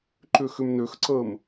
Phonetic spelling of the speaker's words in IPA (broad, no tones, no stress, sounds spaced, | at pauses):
ǃ ʏ x ʏ m n ø x ǀ əː m